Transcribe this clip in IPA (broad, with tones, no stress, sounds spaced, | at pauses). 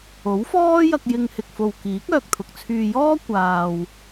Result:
o˨˥ w f ɔː˥ j ɐ˧ k̚ j ɪ˧ ŋ h ɪ˨ k̚ f o˨ w k iː˨˥ k̚ œː˧ k̚ t̪ʰ ʊ˨ k̚ t͡sʰ yː˧ j ɔː˥ kʷ aː˨ w